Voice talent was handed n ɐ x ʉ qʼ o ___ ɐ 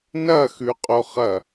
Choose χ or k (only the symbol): χ